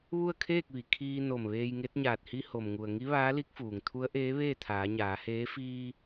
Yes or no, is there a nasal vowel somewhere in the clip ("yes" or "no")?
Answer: no